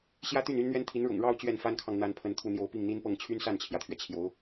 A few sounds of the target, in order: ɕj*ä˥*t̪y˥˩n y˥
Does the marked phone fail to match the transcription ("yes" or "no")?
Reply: no